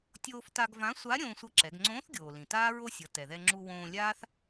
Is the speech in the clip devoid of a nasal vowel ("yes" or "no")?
no